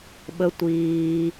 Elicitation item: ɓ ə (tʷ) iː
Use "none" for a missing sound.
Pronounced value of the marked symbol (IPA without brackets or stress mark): tʷ